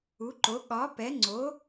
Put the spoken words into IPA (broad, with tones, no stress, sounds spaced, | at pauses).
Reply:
u˨˥ ǃ o˨˥ ɠ ɒ˨˥ p ɛ˨˥ ŋ͡ǀ o˨˥